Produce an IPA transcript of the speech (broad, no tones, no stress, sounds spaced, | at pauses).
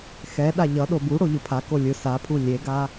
x ɛ ɗ a ʎ ʌ ɗ o b u ɽ o ʎ ɯ pʰ a k o lʲ ɯ s a pʰ u lʲ e ɡ a